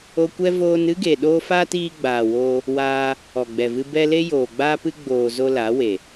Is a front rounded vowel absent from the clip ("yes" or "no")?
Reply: yes